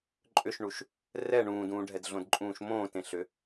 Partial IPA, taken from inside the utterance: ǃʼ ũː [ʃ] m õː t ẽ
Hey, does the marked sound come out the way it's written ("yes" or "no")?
yes